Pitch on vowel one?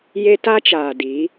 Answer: high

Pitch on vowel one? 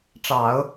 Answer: low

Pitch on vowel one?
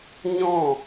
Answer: falling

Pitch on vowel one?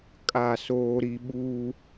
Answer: falling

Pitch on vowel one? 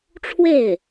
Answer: falling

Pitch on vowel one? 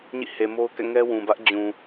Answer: falling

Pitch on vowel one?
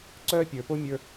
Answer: high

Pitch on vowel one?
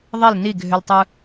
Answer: falling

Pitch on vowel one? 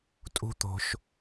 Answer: high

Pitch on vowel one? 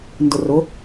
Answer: low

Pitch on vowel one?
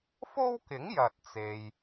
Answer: high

